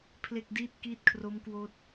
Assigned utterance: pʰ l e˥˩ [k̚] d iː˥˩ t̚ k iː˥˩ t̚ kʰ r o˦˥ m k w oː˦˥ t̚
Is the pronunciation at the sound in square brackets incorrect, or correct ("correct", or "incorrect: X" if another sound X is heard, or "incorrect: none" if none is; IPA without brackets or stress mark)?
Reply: correct